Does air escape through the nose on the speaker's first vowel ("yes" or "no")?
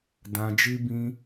yes